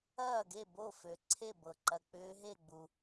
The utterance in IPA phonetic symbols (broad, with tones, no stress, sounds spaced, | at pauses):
ɐː˥˩ ɡ e˥˩ b o˥˩ f ø˩ ǀʰ e˥˩ b ɤ˩ ǃ ɐ˩ k͡p ʏː˧˥ ɦ e˥˩ ɡ͡b u˩